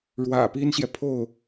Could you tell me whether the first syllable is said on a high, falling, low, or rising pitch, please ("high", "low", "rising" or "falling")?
low